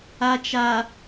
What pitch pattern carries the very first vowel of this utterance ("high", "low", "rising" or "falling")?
low